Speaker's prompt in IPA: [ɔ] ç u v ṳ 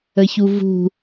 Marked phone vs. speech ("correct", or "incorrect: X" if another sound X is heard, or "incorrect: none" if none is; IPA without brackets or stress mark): incorrect: ə